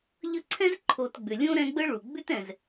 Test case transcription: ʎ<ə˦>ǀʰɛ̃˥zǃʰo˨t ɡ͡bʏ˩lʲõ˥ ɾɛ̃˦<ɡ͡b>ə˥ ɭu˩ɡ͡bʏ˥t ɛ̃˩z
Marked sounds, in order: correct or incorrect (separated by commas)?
correct, correct